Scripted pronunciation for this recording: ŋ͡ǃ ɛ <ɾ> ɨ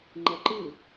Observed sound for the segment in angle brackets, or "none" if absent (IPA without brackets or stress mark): ǃ